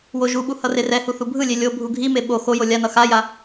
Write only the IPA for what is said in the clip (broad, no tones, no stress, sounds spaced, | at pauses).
w o ʒ u ɓ u h ʌ r e r ɛ h u θ u bʱ ɯ lʲ e lʲ o bʱ u ɡʱ i m e ɓ o x o j o lʲ a n ʌ x a j a